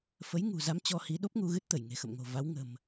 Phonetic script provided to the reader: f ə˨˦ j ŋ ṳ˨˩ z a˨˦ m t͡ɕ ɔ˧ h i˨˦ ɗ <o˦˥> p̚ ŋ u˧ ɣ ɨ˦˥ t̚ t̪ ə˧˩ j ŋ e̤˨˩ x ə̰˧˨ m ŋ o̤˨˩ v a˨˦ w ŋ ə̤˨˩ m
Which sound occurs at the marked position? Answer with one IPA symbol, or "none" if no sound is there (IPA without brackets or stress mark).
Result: o˦˥